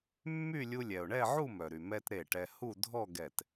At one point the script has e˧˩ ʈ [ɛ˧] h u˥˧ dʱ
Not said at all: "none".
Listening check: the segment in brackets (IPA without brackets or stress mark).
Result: ɛ˧